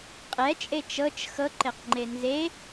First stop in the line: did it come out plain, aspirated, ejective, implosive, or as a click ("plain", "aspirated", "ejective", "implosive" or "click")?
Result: ejective